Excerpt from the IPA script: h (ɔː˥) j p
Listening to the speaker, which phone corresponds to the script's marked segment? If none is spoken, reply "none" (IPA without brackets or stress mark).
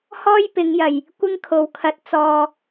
ɔː˥